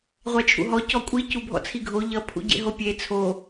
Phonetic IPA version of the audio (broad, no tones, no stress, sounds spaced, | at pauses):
ʁʷ æ t͡ʃʰ ṵ ɦ ɔ c ɔ kʷʼ i c u bʱ ɔ̰ t͡sʰ i ɡʱ o ʎ ʌ pʰ ṵ ɟ ḛ ɦ o pʲ e t͡sʰ o